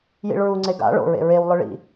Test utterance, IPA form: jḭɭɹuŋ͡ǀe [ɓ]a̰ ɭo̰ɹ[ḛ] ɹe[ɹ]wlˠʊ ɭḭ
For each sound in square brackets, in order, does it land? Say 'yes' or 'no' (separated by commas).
no, yes, no